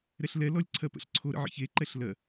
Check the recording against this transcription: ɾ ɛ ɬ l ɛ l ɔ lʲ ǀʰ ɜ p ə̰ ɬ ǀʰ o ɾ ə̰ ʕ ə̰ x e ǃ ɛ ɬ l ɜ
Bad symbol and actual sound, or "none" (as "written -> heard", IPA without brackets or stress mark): x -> ç